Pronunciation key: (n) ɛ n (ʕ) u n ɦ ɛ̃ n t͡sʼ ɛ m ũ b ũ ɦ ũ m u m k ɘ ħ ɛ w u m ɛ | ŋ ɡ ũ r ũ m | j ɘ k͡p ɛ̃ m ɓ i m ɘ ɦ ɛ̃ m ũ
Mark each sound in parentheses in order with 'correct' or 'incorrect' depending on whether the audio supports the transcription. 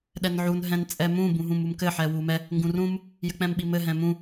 incorrect, correct

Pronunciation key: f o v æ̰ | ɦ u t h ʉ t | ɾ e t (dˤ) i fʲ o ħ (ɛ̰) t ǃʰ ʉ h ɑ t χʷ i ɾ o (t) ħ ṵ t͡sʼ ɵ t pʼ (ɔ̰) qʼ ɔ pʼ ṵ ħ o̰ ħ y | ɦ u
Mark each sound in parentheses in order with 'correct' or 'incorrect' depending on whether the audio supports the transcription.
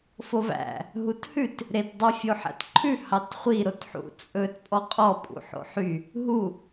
correct, incorrect, correct, incorrect

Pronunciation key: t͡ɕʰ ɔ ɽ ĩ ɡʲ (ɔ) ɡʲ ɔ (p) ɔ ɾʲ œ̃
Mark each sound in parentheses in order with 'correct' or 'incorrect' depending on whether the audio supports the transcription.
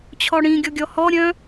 correct, incorrect

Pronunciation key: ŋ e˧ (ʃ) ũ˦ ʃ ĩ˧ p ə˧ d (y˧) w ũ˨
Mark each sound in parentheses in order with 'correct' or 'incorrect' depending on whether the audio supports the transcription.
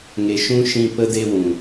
correct, incorrect

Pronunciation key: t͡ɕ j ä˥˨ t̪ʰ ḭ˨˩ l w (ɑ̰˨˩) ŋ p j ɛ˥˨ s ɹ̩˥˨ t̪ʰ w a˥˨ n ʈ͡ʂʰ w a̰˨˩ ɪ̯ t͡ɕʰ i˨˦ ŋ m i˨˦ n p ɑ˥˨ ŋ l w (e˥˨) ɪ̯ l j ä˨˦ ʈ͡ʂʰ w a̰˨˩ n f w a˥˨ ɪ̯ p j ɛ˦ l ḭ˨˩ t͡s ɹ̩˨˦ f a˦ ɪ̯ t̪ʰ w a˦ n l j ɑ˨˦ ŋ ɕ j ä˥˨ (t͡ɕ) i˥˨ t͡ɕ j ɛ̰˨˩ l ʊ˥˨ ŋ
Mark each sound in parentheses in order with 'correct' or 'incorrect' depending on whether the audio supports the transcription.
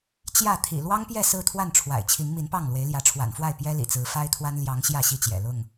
incorrect, incorrect, incorrect

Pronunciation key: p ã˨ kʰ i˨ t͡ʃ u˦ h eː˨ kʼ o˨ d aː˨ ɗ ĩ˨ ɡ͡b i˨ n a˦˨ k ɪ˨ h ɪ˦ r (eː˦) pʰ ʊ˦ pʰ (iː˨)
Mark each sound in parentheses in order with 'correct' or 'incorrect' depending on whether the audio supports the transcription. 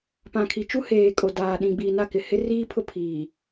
incorrect, correct

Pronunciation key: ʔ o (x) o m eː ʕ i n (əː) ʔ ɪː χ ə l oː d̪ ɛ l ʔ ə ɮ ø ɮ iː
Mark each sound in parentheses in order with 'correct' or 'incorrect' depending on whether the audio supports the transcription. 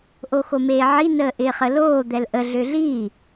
correct, correct

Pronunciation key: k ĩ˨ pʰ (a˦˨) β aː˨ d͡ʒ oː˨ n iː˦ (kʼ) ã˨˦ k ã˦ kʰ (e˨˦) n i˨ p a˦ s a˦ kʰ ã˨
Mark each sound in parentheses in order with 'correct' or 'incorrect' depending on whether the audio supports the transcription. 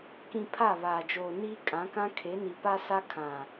correct, correct, correct

